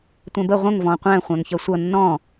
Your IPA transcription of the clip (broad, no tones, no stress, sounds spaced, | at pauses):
tʷ ɛ̃ b ə ʁʷ ə̃ ŋ v ɔ̃ qʷ æ̃ χʷ æ̃ ŋ ç ʌ sʷ ʌ nː ɔ̃